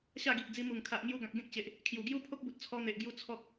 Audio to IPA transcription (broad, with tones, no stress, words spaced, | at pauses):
ɕa˥˧ɡi˨ʔd͡zi˧ mu˨˩ŋ kʰa˨ʔŋju˧ɡã˨k̚ ɡẽ˦k̚t͡ɕe˨ʔ | kʰju˨˩ɡju˦ pʰo˦k̚bu˨t̚ t͡sʰɔ˧n̪e˨ʔɡju˧ t͡sʰɔ˦k̚